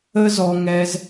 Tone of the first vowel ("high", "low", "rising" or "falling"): high